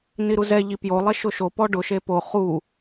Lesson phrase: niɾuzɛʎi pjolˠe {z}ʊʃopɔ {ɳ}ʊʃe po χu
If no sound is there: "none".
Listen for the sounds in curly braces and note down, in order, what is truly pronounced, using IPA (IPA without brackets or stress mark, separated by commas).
ʃ, ɖ